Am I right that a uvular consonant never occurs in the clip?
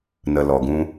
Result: yes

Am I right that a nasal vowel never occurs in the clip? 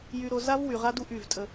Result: yes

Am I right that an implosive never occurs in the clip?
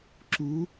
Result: yes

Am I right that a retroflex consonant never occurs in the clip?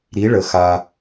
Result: no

